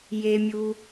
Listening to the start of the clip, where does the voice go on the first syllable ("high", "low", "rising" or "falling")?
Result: low